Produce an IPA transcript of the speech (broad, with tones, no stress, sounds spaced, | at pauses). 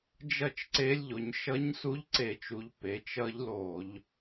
d͡ʒ ʌ˥˩ t͡ʃ ǀ e˧˥ lʲ ʎ o˩˧ ɲ ʃ ʌ˧˥ ɲ s u˧˥ ʎ ǀ e˧˩˧ t͡ʃ u˩˧ ʎ p e˩˧ t͡ʃ ʌ˧˥ ʎ l o˧˩˧ ʎ